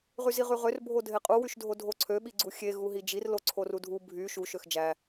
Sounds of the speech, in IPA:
ʁyziʁyʁør bʱodʱeqʼu wyʃdʱodʱoǀʰø ɓiɡ͡ǀuxʲe ɣuɦid͡ʒir loǀʰorudʱu bʱy ʃu ʃøxd͡ʒæ

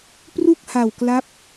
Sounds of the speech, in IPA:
pru˥˩k̚ha˨˩wkla˦˥p̚

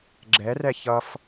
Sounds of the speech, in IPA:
ɡ͡ǁɛrɛ çʌf

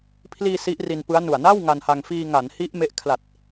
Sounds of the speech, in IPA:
pʰliː˧ si˦˥ʔri˧npɯ˦˥a̯nu˨˩a̯ na˥˩w ŋa˧nha˧ŋ fiː˧ ŋa˩˦nhi˦˥ʔ me˦˥ʔ kʰla˨˩t̚

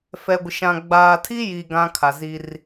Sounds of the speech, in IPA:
fɛ˨ɡʷɪ˨ʃã˨ ɡ͡baː˨tʰi˦ji˨ ɡã˦kʰa˨zi˦r

